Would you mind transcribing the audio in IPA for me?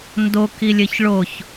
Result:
n d o k i lʲ ɘ ç ɭ o ç

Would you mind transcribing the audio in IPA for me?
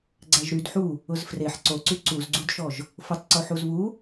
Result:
ɡ͡ǀ æ ʒ ɾ y d ħ u | ʊ z f r e ħ ǀ o ǀ y ǀ u z ɡ͡ǀ u d ʃ ɔ ʒ | f ʊ tˤ ǀ o ħ u z β u

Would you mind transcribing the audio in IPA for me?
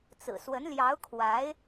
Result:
t͡s ɹ̩˨˩ s w ə˧˥ n l j ɑ˧˥ ʊ̯ kʰ w a˧˥ ɪ̯

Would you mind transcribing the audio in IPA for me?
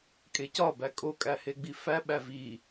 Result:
kʼ e c ɒ b æ kʼ o kʼ æ h e ɡ͡b i f æ ɓ æ v i

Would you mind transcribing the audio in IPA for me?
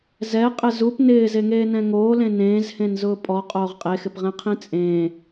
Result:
z ɛ qʼ ɪ z u p n ɪː z e ŋ eː n ɛ̃ ŋ oː l ẽ n ẽː z h ẽ n z ʊː pʼ ɔ qʼ oː ʁ qʼ e x ɪ p ʁ ɛ̃ qʰ ĩ t͡sʼ ẽː

